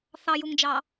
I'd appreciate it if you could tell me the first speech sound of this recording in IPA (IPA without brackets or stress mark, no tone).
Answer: θ